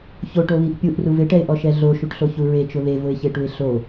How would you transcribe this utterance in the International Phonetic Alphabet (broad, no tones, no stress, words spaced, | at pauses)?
çoʈoβiʔ pʲuʔruv ɪʈɛɪ̯ʔɔʃɛ ɮoʃuʈɬoçu ɹet͡ʃʊ βevʊɪ̯çeʈuɪ̯ ɬo